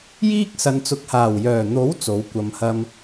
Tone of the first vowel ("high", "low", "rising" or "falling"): high